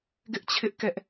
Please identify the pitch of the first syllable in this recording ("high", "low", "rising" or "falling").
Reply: high